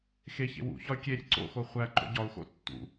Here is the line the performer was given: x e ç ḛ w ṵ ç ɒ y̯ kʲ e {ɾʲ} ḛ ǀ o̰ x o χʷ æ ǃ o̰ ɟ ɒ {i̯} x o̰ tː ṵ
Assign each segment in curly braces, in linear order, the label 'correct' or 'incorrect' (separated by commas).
correct, incorrect